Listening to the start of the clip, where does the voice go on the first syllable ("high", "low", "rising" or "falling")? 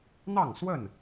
falling